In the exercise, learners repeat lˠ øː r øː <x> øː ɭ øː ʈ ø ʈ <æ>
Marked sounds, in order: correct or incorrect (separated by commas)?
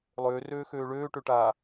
correct, incorrect